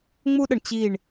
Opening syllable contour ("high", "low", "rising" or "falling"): high